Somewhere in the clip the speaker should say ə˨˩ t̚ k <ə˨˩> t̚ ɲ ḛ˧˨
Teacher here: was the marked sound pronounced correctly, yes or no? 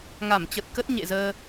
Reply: no